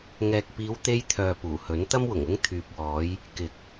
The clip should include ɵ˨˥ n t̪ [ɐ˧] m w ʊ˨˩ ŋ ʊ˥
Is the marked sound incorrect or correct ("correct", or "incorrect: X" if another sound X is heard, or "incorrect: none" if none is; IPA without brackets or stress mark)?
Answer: incorrect: ɐ˥